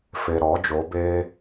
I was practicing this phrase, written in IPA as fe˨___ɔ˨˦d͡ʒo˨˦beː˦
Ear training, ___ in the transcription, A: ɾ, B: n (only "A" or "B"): A